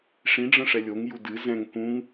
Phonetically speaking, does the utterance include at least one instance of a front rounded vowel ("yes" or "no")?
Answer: no